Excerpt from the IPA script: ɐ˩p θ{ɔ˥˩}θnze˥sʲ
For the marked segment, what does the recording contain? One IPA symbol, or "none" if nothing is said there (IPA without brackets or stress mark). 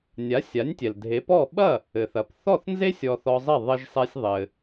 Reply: ɔ˥˩